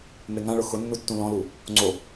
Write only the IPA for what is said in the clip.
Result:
m e ŋ ã ɭ ʊ x ʊ nː u tː ũ l ɔ̃ l u | ŋ͡ǀ o

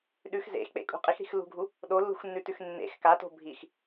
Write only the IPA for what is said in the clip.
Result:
ɗ ʉ x z ḛ x k͡p ḛ kʼ ṳ qʼ i x ɾ i̤ x lː ṳ ɡʱ u | ɗ o lː ṳ x nː ʉ t ʉ x nː ḛ x k a t o̤ bʱ i x

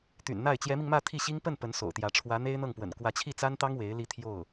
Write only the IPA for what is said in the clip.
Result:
t̪ y̰˨˩ n n̪ a˥˩ ɪ̯ t͡ɕ j ɛ˧˥ m i˧ ŋ m ä˥˧ t̪ʰ i˥˩ ɕ i˥ ŋ p ə˥˩ n p ə˧˥ n s o̰˨˩ ʊ̯ t̪ j ä˧˥ ʈ͡ʂʰ w ä˧˥ n̪ e˥ ɪ̯ n̪ ɤ˥˩ ŋ p w ə̰˨˩ n k w ä˧˥ t͡ɕʰ i˥˩ t͡s a˥ n t̪ ɑ˥ ŋ w e˧˥ ɪ̯ l i˥˧ t̪ʰ j o˥˩ ʊ̯

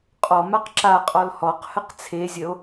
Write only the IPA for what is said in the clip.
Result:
qʼ ɔ m a q ǁ a qʼ ɔ l h ɔ q h ə q t͡sʰ e zʲ ə o̯

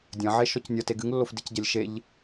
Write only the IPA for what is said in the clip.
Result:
dʲ ɐ̃ ʕ e ʃ ɔ c nʲ ɐ t e ɡ ɨ ŋ lː o f d i c ɟ ɐ lʲ ʃ e ʎ

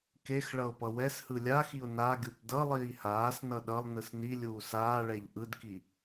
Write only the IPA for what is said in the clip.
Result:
k e x ɭ ʌ ʊ̯ p ʌ w ɛ s h ɯ lʲ a x i ʊ̯ n a ɡʲ u p d ʌ lˠ iː h aː s n ʌ ɗ ʌ lˠ n ɯ s n i lʲ uː s aː ɭ ɛ ʎ ʔ ɯ d k i

